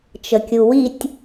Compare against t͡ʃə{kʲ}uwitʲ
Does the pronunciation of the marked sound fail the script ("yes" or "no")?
no